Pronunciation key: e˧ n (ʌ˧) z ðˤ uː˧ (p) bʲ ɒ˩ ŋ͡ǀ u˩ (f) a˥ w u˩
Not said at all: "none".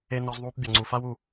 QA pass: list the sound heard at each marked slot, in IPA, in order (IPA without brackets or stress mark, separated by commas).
ɒ˧, p, f